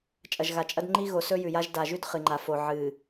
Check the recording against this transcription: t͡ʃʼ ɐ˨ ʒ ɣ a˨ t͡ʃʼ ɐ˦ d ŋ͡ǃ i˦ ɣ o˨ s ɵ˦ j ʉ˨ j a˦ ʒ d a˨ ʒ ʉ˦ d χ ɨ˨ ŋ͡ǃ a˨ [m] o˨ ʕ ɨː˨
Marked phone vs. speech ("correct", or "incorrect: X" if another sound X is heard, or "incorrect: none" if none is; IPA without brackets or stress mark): incorrect: f